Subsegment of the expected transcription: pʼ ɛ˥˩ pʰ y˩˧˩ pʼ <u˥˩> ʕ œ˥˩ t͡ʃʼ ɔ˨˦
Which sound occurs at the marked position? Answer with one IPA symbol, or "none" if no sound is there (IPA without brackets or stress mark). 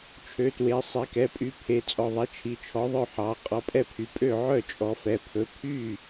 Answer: ø˥˩